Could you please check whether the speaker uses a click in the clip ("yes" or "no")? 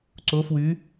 yes